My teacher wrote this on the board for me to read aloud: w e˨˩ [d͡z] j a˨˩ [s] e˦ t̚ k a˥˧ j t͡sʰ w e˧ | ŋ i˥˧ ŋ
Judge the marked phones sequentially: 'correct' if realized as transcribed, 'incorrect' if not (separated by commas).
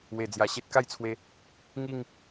correct, incorrect